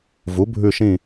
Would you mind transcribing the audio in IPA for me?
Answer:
v u˩˥ bʱ ʉ˦˨ ʃ ĩ˦˨

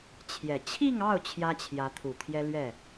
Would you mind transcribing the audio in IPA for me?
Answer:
t͡ɕʰ j ɛ˨˩ t͡ɕʰ i˥˧ ŋ ɑ˥˩ ʊ̯ t͡ɕʰ j ä˥ t͡ɕʰ j ä˧˥ t̪ʰ u˨˩ t̪ʰ j ɛ˥ l ɥ ɛ˥˩

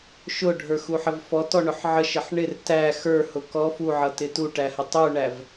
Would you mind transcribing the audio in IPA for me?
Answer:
ʃ ʊ ɖʱ ə˞ x u ħ ə v f ɔ t ɔ ɳ ʊ ħ ʕ ə ʃ ə ħ ɳ ɪ r t æ x ə˞ h ʊ k ɔ f u ʕ ʌ t ɪ t u ʈ æ h ə tˤ u ɳ æ v

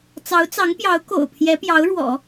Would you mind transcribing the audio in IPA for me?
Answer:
t͡s ɑ˧˥ ʊ̯ t͡s ɑ˧˥ ŋ p j ɑ˧˥ ʊ̯ k o̰˨˩ ʊ̯ pʰ j ɛ˧˥ p j ɑ˧˥ ʊ̯ ɻ w ɔ̰˨˩˦

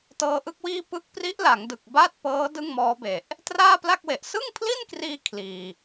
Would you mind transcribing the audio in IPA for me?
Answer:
t ɤː˧ ʔ ɯ˦˥ k̚ w iː˥˩ p ɯ˦˥ k̚ p r i˦˥ ʔ l a˩˦ ŋ d ɯ˨˩ k̚ b aː˥˩ t̚ p ɤː˦˥ d ɯ˥˩ ŋ m ɔː˦˥ b e˨˩ ʔ | t r aː˥˩ p l a˥˩ k̚ w e˨˩ ʔ s ɯ˥˩ ŋ pʰ l i˥˩ n k r iː˧ kʰ l iː˨˩

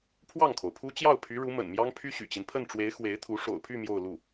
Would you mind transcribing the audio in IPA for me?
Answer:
pʰ w ɑ˥˩ ŋ kʰ o˩ ʊ̯ pʰ u˥ t͡ɕ j ɑ˥˩ ʊ̯ pʰ y˧˥ ɻ u˧˥ m ə̰˨˩ n m j ɑ˥ ŋ pʰ y˥ ɕ y̰˨˩ t͡ɕ i˦ n pʰ ə˥˩ n ʈ͡ʂ w e˧˥ ɪ̯ x w e˧˥ ɪ̯ t̪ʰ u˧˥ ʂ o̰˨˩ ʊ̯ pʰ y˥˧ m j o˥˧ ʊ̯ l u˥˩

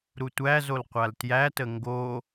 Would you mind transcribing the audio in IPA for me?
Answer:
ɾ u tʷ æ z o l qʷ a l t j æ t ə ŋ ɡ o

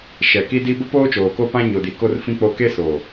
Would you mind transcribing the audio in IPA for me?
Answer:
ʃ ɛ˨ k i˦ d i˦ b ʊ˦ p oː˦ t͡ʃ oː˨ k o˦ p ã˦ ɲ o˨ d i˨ k o˦ r f ĩ˦ k͡p o˦ k e˦ s o˨

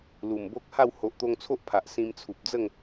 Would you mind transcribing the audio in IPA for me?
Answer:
l u˨˩ m b o˦ k̚ h a˥˧ w h o˨ ʔ t̪ o˧ ŋ t͡sʰ o˦ ʔ pʰ a˨ ʔ s ĩ˧ m t͡sʰ u˨ p̚ d͡z ə˥˧ ŋ

